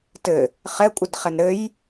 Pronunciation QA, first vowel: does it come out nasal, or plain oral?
oral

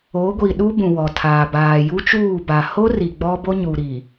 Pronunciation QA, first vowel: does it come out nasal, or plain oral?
oral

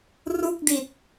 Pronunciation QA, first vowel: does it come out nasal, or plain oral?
oral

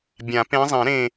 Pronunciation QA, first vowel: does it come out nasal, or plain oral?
nasal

